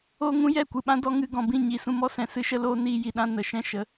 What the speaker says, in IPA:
oː˧ ŋ ũ˦ j ɛ˦˨ kʷ ɨ˨ ɓ ã˦ d ɔ˧ ŋ ɨ˧ ɡ ɔ̃˨ b ĩ˦˨ ɲ i˨ s ũ˧ m ɔ˦ s ɛ̃˨ s ɨ˦ ʃ ə˦ l oː˦ n iː˧ j i˨ ɗ ã˧ n ə˨ ʃ ɛ̃˦ ʃ ə˨˦

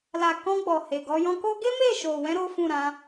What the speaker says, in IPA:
l a˨ k ɔ̃˧ ɡ͡b ɔ˨ h e˨ ɡ ɔ˧ j ɔ̃˧ k o˦ ɡ e˦ m e˦˨ ʃ o˨ w ɛ̃˧ ɾ o˦ f ũ˦˨ ɾ ã˨˦

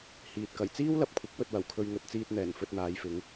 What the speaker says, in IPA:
h iː˨ t̚ k ɐ˨˩ j t͡s iː˥ w l ɐ˨ p̚ kʷʰ ɪ˨˥ k̚ w ɵ˧ t̚ w ɐ˨˩ w kʰ ɵ˧ ɥ ŋ ɵ˨ t̚ t͡s iː˧ t̚ n̪ ɛː˨˩ n f ɵ˧ t̚ n̪ aː˨˧ j f ɪ˨˧ ŋ

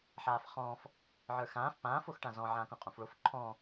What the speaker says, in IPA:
ħ aː f χ ɔ̃ː f | ʕ ə˞ x ãː f p ãː f o x ʈ ã z ɔ̃ ʕ ãː k õ qʼ õ f ɭ o f ǃʰ ɔ̃

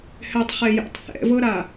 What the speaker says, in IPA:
h ɛ tˤ χ e j ɛ̰ tˤ θ ɛ̰ v ɤ ɾ a

